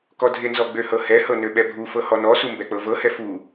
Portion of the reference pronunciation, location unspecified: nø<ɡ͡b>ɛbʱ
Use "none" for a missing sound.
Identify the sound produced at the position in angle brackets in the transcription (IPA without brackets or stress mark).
ɓ